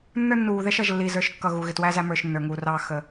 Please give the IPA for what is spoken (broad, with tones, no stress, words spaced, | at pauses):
nːə˞˦nːuː˨ðɛ˦ʃʌ˨ʒ lːiː˨zə˞˨ʃkːʌ˨ ɣu˨ɣɪ˨ twæ˦zæ˦mə˞˨ʃ nːə˞˨ŋuː˨rɑː˦ xə˦